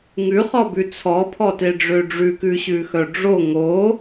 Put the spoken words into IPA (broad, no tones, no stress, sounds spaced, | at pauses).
ŋ ʉ χ ɔ b ʉ t͡sʰ ɔ pʰ ɔ t e ɖ͡ʐ ø ɖ͡ʐ ʉ k ʉ ɕ ʉ x œ ɖ͡ʐ o ŋ o